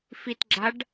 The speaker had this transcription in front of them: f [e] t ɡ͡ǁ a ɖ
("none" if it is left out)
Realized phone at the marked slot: i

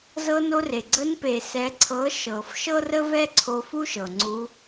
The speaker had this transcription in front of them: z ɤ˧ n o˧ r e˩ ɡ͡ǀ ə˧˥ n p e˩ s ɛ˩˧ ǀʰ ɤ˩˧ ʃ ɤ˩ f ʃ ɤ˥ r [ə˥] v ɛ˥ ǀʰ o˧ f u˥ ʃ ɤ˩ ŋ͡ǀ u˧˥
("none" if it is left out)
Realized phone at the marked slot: ə˥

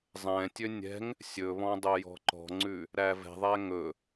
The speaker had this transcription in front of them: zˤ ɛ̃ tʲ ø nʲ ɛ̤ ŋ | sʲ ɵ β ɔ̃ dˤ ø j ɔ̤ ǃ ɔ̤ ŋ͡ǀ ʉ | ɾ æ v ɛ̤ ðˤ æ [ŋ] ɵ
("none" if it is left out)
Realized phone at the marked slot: ŋ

